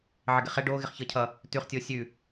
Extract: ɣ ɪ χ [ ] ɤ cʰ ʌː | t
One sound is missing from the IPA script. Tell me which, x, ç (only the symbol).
ç